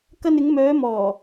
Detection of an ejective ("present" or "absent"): absent